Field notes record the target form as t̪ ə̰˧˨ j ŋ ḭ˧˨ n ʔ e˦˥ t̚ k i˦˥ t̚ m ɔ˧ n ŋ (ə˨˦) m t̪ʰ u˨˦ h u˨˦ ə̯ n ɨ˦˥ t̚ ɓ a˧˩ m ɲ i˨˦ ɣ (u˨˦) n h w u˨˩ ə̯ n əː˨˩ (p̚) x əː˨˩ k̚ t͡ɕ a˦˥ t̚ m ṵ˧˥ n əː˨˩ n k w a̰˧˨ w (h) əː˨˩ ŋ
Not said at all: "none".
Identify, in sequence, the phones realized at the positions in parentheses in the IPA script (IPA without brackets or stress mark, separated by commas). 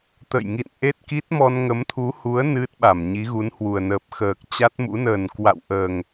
ə˨˦, u˨˦, p̚, ʔ